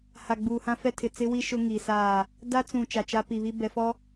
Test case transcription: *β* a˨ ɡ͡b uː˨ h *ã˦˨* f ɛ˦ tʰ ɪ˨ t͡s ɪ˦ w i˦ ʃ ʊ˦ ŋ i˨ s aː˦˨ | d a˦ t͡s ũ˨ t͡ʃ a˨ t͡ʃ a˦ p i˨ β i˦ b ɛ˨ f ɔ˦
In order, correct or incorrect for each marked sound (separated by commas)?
incorrect, incorrect